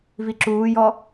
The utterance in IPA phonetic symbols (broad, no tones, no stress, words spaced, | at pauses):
viǁuːjɔ